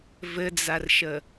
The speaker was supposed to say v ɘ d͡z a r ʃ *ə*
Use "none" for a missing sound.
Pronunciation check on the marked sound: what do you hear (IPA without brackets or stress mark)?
ə